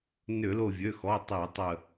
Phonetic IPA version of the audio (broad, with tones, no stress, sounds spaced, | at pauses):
n ʏ˧˩˧ l o˧˩ vʲ ø˩˧˩ x ɔ˩˧˩ tˤ i˧˩˧ tˤ ə˧˩